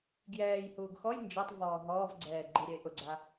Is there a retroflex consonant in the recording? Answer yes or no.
no